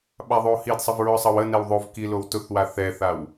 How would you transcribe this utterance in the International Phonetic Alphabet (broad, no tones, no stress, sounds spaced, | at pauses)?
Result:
ɓ a ðˤ o h i d sˤ ə v ɹ ʊ sˤ ʌ w ə n ɛ w ðˤ o v k i l o w t ʊ θ w a θ ɛ θ a w